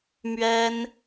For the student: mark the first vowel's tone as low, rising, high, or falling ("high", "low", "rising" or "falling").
high